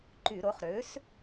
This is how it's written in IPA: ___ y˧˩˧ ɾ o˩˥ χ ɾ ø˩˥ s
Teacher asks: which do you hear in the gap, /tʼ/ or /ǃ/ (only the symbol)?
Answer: ǃ